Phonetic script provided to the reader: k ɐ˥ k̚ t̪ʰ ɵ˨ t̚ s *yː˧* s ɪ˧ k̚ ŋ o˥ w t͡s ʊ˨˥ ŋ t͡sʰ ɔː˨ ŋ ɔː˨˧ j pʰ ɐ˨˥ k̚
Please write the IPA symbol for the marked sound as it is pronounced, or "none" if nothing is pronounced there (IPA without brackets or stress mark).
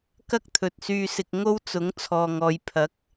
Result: yː˧